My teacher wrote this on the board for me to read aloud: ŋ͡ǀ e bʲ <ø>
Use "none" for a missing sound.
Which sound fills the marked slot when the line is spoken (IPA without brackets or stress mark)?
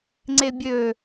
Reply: ø